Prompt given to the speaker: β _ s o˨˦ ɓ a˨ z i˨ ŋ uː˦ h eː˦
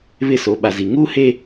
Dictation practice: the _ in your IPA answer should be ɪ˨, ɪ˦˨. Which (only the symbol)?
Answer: ɪ˦˨